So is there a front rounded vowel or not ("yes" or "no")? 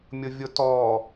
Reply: no